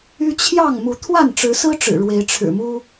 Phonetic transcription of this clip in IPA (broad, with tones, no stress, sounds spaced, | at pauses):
y˦ t͡ɕʰ j ɑ˥˨ ŋ m u˨˦ t̪ʰ w a˥˨ n ʈ͡ʂ ɻ̩˨˦ s ɹ̩˦ ʈ͡ʂ ɻ̩˨˩ ɻ w e˨˦ ɪ̯ ʈ͡ʂʰ ɻ̩˨˩ m u˦